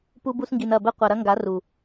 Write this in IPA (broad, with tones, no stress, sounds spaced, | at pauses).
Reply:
p u˧ b u˧ s ŋ ɡ i˨ n ɐ˦˨ b ɘ˦ qʷ ɐ˨ ɾ ɐ˦ ŋ ɡ a˨˦ r u˨